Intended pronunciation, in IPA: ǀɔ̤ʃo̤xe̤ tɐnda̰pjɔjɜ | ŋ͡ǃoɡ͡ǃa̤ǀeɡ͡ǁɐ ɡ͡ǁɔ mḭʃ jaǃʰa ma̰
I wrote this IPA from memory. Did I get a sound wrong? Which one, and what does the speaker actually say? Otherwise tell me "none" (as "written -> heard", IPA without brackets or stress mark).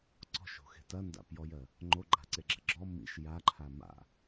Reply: none